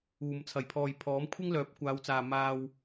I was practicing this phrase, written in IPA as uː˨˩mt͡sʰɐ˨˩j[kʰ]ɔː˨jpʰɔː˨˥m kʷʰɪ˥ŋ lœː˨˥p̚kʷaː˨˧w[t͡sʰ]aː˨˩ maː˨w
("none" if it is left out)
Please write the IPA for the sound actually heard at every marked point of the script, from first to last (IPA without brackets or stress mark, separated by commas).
pʰ, t͡s